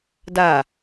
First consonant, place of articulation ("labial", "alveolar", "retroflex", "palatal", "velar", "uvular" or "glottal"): alveolar